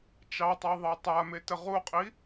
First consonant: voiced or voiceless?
voiceless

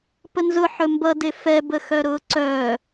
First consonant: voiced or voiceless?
voiceless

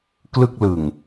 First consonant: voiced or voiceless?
voiceless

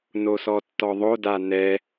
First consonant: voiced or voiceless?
voiced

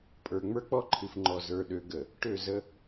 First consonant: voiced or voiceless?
voiceless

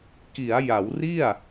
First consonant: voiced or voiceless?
voiceless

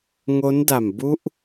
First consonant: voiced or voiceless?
voiced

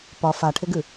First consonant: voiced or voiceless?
voiceless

